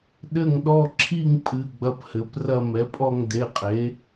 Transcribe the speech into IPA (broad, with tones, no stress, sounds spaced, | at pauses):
ɗ ɘ˥˧ ŋ ɗ ɔ˥˧ ǁʰ i˥˧ ŋ pʼ ɨ˩˧˩ ɡ͡b ɐ˥˧ p h ɘ˩˥ p r ɐ˥˧ m ɛ˩˥ pʼ ɔ˥˧ ŋ d e˩˧˩ qʼ e˩˥